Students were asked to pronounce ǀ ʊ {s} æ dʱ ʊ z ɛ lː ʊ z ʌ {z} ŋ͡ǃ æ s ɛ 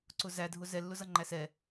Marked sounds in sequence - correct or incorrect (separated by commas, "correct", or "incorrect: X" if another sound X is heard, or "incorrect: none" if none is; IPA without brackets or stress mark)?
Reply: incorrect: z, incorrect: none